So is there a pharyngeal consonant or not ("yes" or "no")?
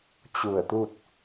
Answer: no